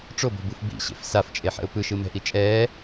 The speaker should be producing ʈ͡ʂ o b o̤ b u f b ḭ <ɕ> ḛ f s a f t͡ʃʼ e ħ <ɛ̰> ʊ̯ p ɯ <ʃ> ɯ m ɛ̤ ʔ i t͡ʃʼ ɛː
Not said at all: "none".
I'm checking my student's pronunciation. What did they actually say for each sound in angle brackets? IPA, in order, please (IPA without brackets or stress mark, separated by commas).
ɕ, ɛ̰, ʃ